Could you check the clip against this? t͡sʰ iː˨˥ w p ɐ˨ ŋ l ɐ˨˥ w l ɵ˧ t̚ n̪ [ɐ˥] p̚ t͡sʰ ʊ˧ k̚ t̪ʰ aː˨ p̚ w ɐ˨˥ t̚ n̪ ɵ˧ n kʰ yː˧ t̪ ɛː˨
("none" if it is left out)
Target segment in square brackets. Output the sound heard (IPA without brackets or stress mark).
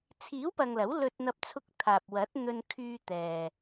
ɐ˧